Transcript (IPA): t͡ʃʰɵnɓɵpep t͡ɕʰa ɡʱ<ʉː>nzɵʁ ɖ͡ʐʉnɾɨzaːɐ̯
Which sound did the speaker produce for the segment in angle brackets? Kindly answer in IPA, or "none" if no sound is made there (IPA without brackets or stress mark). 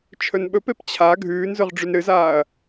ʉː